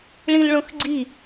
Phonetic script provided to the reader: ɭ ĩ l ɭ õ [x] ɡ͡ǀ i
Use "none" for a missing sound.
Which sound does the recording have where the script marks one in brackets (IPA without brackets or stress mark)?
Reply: x